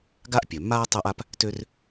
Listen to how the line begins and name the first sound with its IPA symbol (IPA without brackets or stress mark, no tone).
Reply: ɡ